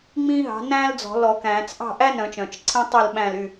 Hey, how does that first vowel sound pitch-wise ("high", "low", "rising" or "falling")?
high